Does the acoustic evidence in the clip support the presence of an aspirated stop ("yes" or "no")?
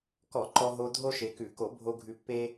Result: no